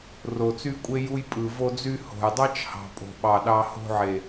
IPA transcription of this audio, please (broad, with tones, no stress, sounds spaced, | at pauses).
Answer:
r o˧ t͡s y˦ kʷʼ e˦ j u˦ j pʼ ɯ˨ v o˧ d͡z y˧ h o̤˨ j dˤ ɑ˦ t͡ʃ h ɑ̤˨ pʼ o̤˨ ɓ ɑ˨ ɗ ɑ˧ h o̤˧ ʕ e˨